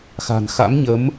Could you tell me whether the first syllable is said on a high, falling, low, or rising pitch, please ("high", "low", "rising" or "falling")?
low